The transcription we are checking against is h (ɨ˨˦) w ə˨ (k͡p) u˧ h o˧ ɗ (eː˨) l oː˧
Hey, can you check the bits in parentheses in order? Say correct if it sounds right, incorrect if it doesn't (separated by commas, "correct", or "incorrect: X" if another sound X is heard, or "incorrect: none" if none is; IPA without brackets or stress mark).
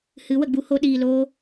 correct, incorrect: ɡ͡b, incorrect: iː˨